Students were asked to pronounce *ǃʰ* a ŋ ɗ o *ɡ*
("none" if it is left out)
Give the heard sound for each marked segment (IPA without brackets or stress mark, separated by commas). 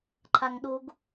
ǃʰ, ɡ